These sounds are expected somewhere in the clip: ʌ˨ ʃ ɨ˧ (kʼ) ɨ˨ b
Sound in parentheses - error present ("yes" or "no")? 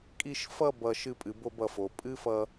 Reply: yes